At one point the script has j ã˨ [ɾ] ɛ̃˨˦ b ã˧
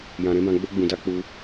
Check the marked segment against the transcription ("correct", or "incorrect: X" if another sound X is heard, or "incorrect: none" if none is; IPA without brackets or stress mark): correct